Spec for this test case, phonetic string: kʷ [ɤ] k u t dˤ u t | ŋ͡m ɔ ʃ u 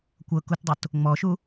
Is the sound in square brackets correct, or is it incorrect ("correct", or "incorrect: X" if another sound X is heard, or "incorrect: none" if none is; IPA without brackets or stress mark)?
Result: correct